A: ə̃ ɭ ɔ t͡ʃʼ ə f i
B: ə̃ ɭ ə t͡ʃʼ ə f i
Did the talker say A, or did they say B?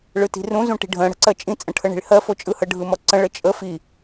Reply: B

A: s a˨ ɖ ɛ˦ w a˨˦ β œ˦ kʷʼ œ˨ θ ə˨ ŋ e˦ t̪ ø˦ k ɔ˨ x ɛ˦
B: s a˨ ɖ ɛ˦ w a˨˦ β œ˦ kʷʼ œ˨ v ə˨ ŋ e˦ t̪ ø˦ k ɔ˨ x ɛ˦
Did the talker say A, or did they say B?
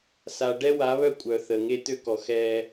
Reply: A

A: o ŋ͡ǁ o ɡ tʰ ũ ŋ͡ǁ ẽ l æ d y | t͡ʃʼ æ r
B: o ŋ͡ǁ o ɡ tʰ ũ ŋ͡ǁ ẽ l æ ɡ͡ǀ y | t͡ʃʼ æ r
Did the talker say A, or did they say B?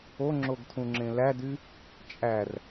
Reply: A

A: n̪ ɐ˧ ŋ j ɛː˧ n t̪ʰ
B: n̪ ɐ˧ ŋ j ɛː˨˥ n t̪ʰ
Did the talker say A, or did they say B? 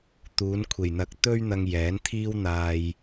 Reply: B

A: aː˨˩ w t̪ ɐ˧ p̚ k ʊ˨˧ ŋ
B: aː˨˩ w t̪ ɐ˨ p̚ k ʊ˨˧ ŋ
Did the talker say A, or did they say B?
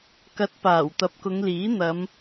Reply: B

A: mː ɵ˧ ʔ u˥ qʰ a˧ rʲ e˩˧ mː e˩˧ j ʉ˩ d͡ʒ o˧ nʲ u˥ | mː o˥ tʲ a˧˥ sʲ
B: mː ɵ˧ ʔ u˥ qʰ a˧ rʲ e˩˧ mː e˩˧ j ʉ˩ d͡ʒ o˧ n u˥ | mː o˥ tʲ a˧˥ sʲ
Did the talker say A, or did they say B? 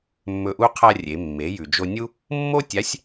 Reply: A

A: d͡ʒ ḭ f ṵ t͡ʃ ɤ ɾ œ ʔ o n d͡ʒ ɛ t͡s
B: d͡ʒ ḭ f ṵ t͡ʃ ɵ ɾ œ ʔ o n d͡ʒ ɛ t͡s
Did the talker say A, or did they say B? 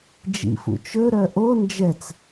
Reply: B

